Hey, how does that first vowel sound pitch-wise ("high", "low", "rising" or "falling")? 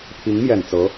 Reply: rising